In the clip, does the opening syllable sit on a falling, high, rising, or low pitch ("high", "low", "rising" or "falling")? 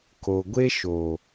low